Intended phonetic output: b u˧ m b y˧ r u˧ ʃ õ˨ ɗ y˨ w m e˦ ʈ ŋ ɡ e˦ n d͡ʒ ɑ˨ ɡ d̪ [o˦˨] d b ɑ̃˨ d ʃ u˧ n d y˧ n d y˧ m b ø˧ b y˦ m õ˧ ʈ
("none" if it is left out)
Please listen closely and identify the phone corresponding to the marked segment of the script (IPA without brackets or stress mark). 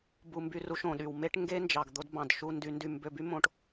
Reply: o˧